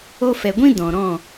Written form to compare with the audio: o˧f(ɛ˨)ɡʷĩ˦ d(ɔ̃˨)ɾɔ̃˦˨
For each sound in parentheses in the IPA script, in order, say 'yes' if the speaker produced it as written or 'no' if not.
yes, yes

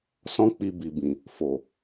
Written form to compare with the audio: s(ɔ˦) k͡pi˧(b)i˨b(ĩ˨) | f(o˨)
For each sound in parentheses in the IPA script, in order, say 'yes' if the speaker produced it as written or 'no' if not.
no, yes, yes, yes

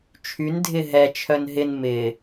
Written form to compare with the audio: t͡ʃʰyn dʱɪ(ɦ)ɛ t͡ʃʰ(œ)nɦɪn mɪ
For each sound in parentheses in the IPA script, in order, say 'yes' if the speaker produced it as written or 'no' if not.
yes, yes

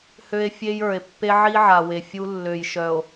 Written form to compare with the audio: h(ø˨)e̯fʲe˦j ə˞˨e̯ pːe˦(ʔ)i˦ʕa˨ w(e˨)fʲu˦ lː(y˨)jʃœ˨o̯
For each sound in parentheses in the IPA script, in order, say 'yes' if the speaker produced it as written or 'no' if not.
no, no, yes, no

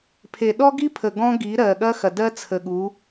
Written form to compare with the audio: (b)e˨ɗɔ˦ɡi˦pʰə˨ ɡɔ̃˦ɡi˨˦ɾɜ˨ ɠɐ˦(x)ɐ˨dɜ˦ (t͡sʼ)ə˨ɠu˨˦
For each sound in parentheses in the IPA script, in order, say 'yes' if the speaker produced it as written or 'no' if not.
no, yes, no

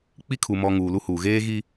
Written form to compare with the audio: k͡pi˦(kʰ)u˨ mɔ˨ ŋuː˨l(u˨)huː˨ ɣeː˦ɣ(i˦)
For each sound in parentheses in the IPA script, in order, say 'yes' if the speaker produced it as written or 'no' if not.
yes, no, yes

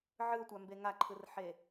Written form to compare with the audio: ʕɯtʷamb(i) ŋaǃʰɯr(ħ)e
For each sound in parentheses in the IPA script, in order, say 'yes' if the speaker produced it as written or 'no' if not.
no, yes

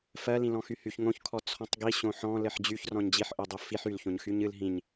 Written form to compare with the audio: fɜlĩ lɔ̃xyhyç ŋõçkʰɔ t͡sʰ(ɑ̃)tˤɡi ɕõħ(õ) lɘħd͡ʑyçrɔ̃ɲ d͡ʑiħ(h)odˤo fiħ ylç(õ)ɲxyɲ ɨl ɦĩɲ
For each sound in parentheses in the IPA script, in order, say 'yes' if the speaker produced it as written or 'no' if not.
no, no, no, yes

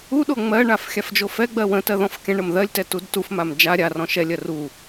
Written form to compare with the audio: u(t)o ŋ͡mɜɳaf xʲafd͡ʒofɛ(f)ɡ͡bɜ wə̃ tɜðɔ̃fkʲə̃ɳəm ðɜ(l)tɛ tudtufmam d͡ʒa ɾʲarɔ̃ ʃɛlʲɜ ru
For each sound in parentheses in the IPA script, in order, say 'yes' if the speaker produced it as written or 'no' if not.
no, no, no

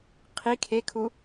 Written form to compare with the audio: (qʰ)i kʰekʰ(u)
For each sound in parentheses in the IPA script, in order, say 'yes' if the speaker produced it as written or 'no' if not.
yes, yes

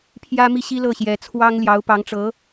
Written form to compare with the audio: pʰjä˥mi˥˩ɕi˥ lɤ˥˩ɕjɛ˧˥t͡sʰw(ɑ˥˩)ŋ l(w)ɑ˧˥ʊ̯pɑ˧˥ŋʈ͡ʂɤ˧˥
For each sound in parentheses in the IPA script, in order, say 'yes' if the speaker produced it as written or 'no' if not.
no, no

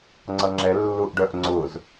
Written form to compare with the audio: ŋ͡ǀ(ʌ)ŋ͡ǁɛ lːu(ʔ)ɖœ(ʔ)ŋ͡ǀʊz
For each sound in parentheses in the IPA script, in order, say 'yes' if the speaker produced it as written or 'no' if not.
yes, yes, yes

